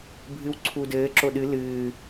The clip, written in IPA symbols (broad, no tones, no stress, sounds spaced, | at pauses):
bʱ ɨ w ǀʰ u d ɘː ǁ o ɗ ɨ l ɨː